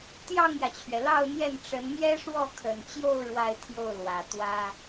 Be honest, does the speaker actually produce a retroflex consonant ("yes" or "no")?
yes